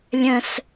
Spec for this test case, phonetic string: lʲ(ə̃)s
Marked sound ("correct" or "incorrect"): correct